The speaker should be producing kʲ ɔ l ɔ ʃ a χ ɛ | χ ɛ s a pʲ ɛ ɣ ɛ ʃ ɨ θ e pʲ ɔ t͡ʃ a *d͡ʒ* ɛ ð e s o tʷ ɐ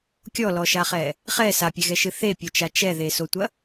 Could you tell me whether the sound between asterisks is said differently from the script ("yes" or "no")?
yes